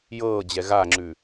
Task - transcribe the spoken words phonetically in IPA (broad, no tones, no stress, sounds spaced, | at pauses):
j ɤː d͡ʑ ɛ ɣ a ŋ͡ǁ ʉ